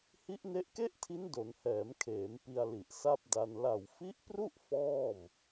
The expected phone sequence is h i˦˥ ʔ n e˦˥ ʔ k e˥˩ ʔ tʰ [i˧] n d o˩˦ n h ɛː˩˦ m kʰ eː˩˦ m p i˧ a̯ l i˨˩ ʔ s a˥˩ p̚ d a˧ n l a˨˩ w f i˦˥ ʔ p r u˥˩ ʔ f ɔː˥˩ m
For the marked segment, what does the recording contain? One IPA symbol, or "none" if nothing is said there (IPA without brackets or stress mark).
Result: i˦˥